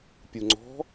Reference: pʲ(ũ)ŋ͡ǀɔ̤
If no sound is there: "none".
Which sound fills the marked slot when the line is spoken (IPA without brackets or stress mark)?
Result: u